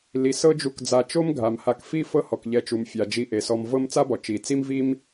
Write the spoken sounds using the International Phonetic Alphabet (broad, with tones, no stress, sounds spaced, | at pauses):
l i˩ s ɤ˦ d͡ʒ u˨ k d͡z a˨ t͡ʃ o˥ m ɡʱ a˩ m h a˨ k f i˦ f ɤ˦ h ɔ˩ k ʎ ɛ˨ t͡ʃ u˩ m fʲ a˩ d͡ʒ i˨ ʔ e˩ s ɔ˨ m v ɤ˥ m t͡s a˥ b ɔ˩ t͡ʃ i˩ t͡s i˥ m v i˥ m